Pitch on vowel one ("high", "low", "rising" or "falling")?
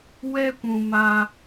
high